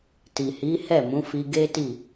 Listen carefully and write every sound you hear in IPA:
ti˨hi˨˦hɛ˦˨ mũ˨˦fi˧ɡe˦ti˦˨

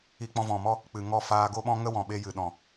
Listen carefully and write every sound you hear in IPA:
i˧k͡pɔ̃˧vɔ̃˨mɔ˦ | k͡pɨ˨ŋɔ˦˨ faː˧ɡo˦ɓɔ̃˦ ŋə˦wɔ̃˨ɓe˧ jɨ˨ɗɔ̃˨

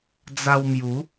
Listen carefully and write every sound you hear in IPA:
d͡za˧wmju˨˦

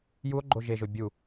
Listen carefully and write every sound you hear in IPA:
juo̯ ɡ͡ǃoʒeʒo bʲu

